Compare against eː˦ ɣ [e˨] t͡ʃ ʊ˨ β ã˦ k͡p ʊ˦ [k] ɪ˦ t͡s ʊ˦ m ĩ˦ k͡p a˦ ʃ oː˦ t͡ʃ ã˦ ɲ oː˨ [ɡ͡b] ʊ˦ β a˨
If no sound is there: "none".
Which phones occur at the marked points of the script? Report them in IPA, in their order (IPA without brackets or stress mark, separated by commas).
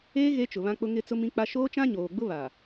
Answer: e˦, ŋ, ɡ͡b